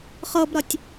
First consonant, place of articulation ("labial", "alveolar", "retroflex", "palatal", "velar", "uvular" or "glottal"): uvular